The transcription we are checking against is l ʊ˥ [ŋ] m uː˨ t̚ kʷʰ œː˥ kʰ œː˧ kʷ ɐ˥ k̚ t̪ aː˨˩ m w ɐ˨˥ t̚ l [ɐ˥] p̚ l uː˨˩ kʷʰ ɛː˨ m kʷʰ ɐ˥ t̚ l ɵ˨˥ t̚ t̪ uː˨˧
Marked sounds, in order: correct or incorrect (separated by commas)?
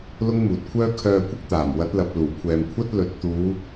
correct, incorrect